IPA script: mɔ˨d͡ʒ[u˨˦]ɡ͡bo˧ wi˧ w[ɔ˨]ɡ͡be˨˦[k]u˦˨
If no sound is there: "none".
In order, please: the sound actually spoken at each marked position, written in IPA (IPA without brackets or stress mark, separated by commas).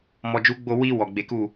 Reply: u˨˦, ɔ˨, k